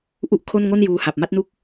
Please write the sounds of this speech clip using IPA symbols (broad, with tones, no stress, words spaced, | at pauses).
ʔu˥˩ʔkʰo˥˩n ŋo˥˩njuː˧ha˨˩p̚ ma˦˥t̚nu˦˥k̚